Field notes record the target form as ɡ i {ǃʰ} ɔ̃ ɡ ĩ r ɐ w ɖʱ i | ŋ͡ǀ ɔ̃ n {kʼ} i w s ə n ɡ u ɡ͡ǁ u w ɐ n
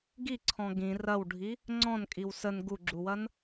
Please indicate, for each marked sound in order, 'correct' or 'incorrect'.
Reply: incorrect: ǀʰ, correct

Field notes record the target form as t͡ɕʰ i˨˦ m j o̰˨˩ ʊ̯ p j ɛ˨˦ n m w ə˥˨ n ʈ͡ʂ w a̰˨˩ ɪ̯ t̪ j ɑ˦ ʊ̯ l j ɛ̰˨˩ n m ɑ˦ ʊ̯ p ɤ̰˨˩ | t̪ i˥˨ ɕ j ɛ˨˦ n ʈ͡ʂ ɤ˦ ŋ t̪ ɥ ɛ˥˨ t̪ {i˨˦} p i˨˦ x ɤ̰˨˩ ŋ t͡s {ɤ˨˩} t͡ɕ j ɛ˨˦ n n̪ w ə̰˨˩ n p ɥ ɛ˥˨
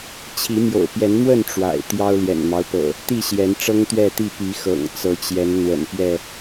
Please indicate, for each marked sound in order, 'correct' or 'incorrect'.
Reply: incorrect: i˥˨, incorrect: ɤ˨˦

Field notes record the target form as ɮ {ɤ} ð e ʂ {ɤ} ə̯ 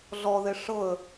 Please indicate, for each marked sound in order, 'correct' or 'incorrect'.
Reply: incorrect: ɔ, correct

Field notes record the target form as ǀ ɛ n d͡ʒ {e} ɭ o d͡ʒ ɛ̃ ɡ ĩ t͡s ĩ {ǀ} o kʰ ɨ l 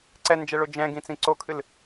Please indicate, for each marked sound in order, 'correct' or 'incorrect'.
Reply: incorrect: ɛ, correct

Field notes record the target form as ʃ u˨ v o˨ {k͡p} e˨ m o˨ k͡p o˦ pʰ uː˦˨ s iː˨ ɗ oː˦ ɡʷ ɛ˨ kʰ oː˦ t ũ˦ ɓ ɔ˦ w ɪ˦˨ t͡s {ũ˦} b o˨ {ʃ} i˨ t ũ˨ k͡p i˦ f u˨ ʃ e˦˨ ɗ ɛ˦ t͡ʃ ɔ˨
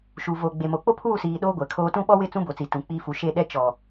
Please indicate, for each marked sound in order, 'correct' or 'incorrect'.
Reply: incorrect: ɡ͡b, correct, incorrect: t͡s

